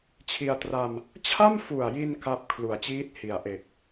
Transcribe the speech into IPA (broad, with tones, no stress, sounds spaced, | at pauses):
t͡ɕʰ i˧ a̯ t r a˧ m | t͡ɕʰ a˥˩ m f u˨˩ a̯ j i˧ n k a˦˥ p̚ kʰ l u˩˦ a̯ t͡ɕ iː˦˥ t̚ h i˩˦ a̯ ʔ e˨˩ k̚